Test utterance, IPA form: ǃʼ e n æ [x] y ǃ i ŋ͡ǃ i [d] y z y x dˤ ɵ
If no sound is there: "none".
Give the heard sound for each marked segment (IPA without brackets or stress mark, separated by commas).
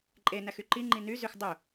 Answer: x, n